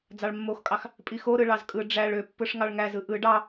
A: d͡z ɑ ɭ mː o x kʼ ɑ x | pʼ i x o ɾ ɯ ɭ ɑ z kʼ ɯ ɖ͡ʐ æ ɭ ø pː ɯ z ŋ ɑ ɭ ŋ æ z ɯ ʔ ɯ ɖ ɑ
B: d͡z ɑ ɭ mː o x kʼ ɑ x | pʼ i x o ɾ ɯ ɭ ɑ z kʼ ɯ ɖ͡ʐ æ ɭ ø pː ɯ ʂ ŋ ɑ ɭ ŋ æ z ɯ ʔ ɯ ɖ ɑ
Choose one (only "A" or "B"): B